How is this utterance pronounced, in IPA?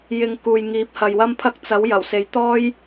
j ɪ˧ ŋ k uː˨ j ŋ iː˨˥ p̚ h ɐ˨ j w ɐ˥ m pʰ ɐ˥ k̚ t͡s ɐ˨˥ w j ɐ˨˩ w s e˨˥ j t̪ ɔː˥ j

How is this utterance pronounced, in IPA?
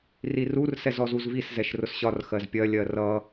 r i r u r s ɛ z ɔ z u z v i s z ɛ ʃ r ʊ s ɕ ɒ r x ɜ z pʲ ɜ lʲ ɜ r ʌ

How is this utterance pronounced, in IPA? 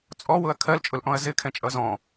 t͡sʼ ɔ w ʊ ɐ̯ kʰ ɜ l t͡ʃʼ ʊ l ʔ ɔ̃ ɐ̯ z ɪ kʰ ɛ̃ t͡ʃʼ ʌ z ɔ̃

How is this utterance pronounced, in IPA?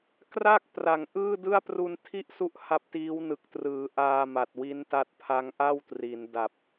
k r a˥˩ k̚ p r a˩˦ ŋ ʔ ɯː˥˩ d ɯ˥˩ a̯ p r u˧ n tʰ i˥˩ ʔ s u˦˥ ʔ h a˦˥ p̚ t iː˦˥ w n ɯ˨˩ k̚ t r ɯː˩˦ ʔ aː˧ m a˨˩ t̚ w i˦˥ n t a˥˩ t̚ pʰ a˦˥ ŋ ʔ a˥˩ w t r i˩˦ n d a˨˩ p̚

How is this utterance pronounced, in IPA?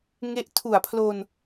ŋ e˦˥ ʔ tʰ u˨˩ a̯ pʰ l o˧ n

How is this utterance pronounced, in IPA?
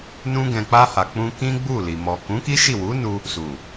n ũ˧ ɡ ɛ̃˨ k͡p a˧ h a˨ k͡p ũ˧ k ĩ˦ ɡ͡b u˦˨ l i˨ m ɔ˨ k ũ˨˦ k i˦ ʃ i˦˨ w u˨˦ n u˧ | s u˨

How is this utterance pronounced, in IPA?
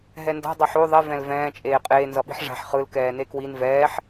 ɦ ɛ n d a̤ dˤ ʌ ħ o ðˤ e v ɛ̃ l v ɛ̃ː t͡ʃʼ eː qʼ eː n z ʌ ɓ i̤ ħ ʐ a̤ ħ χ ɯ l k ɛː n e k w i n v ɛː ħ

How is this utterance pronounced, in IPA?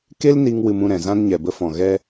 k e˦ l n i˧ ŋ w ɨ˧ m ũ˦˨ ɾ ɛ̃˨ z ã˧ n ɲ ɛ˨ b ə˧ f ɔ̃˨ ɣ ɛ˧

